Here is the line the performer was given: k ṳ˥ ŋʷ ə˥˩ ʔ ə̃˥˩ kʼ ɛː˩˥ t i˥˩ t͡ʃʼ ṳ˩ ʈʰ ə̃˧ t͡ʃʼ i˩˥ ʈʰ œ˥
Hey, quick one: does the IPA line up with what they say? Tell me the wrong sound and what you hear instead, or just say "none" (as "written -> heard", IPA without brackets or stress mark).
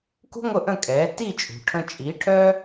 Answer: none